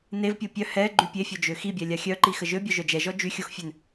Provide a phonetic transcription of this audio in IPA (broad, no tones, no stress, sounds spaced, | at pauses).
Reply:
n e v pʲ o pʲ œ h ɛ ɡ͡ǃ y pʲ e fʲ œ d͡ʒ ø x i bʲ ɛ lʲ a xʲ œ ǃ i x ə ʒ ø bʲ œ ʒ œ d͡ʒ ɛ ʒ ɔ d͡ʒ y xʲ o x fʲ ø n